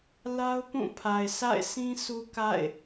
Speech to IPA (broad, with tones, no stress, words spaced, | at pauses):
la˦ʊ̯ pũ˦˨pʰa˨ɪ̯ sa̰˦˨ɪ̯sʰĩ˦ sʰu˦ka̰˦˨ɪ̯